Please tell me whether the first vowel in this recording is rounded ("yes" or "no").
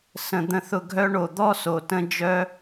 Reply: no